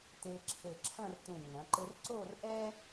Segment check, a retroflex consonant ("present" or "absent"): absent